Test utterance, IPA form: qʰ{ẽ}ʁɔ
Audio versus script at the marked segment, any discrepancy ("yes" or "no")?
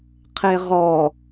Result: yes